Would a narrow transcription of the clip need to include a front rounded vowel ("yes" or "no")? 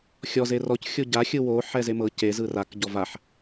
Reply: no